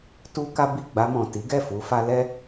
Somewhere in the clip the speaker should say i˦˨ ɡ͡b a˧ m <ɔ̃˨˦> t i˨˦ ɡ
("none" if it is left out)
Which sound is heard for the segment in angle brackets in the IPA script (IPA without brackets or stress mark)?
ɔ̃˨